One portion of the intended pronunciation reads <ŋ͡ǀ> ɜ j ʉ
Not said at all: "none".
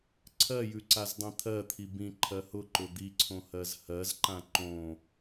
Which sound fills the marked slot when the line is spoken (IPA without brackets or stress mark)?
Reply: ǀʰ